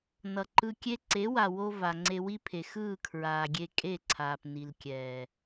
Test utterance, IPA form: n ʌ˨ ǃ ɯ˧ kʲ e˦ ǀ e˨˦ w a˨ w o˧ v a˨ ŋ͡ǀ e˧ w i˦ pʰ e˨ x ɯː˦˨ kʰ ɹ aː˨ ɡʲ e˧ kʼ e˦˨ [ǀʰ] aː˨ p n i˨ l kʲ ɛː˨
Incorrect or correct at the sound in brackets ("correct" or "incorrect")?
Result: correct